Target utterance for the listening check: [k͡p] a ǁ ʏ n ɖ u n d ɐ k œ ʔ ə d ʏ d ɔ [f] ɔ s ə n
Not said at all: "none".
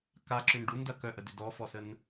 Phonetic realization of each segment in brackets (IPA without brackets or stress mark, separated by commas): k, f